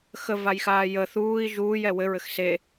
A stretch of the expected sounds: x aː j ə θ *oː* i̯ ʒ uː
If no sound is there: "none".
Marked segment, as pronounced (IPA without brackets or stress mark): uː